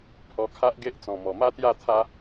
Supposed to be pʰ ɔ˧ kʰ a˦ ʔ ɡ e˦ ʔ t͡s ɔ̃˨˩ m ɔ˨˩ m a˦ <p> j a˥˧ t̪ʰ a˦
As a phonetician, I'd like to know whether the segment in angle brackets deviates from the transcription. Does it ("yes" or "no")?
yes